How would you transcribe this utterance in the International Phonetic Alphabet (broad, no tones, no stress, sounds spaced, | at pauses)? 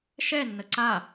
ʃ ɛ nː ə ǀ a